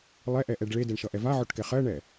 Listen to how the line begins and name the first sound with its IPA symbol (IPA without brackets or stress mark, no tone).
lˠ